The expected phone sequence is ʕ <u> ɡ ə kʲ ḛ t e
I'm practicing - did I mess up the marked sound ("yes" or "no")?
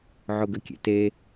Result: yes